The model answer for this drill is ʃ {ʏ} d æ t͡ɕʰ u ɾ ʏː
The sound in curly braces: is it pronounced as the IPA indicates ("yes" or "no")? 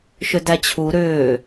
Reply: yes